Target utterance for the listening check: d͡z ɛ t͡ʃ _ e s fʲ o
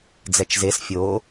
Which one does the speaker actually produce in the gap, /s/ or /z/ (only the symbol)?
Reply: z